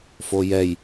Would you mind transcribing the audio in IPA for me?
f o j ɛ j

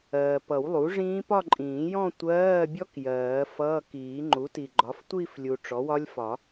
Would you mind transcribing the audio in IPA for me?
ɜː˨ p ʌ˨˩˦ w lˠ u˩˥ ʐ ĩː˦˥ p ɒ˥˧ ǃʼ ĩː˨˩˦ j ɔ̃˥˧ tʷ ɜː˧˥˧ bʲ ɔ˦˥ k j ɜː˨˩˦ f ʌː˧˥˧ k iː˨˩˦ ŋ͡ǃ u˩˥ t i˨ ɡ͡ǃ ɒ˩˥ f tʷ i˥˧ f lʲ u˨ ʈ͡ʂ ɔ˩˥ w ɒ˦˥ lʲ f ɒ˨˩˦

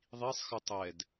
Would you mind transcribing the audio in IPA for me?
ðˤ i sˤ x ɯ tˤ ɛ d

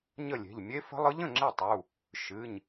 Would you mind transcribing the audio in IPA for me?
ɲ ə˥˩ lʲ e̤˩˧˩ ʎ mʲ e˧˥ f ə̤˧˥ lˠ ɯ˧˥ ʎ ə̃˩˧˩ ŋ͡ǁ e˥˩ tˤ u˩˧˩ | ʃ ɨ˩˧˩ ɲ

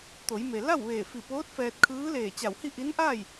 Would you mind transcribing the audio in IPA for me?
t̪ o˩˧ j m e˩ l a˥˨ w ʋ eː˧˩ f i˧˩ p oː˧˥ t̚ f ɛː˧ t̚ kʰ ɯː˧˥ l eː˧˩ t͡ɕ a˧˩ w h i˥˨ ʔ i˧˥ n ʔ aː˥˨ j

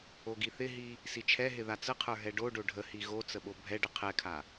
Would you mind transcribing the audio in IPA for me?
o ɡ i θ ɪ ɦ i | s i t͡ʃʰ ɛ ɦ ɪ ð a t͡s ə qʰ ə˞ ɦ ɛ ɖ o ɖ o ɖʱ ə h i ɣ o t͡s ə ɓ o bʱ ɛ ɖ ə qʰ ɛ kʰ a

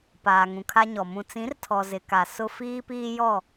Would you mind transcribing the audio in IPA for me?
p aː˨ ŋ ũ˨ kʰ a˦ ɲ ɔ˨ m ũ˨ t͡s ĩ˨˦ r tʰ ɔ˨ z ɪ˨ k a˨ s ʊ˦ f iː˦ p iː˦ j ɔ˦˨

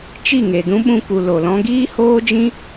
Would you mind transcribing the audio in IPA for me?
t͡ʃ i˦˨ ŋ e˨ d ũ˦ ɓ ũ˧ k u˨ l o˨ l ɔ̃˦ ɡ iː˦ h oː˦ d͡ʒ ĩ˦

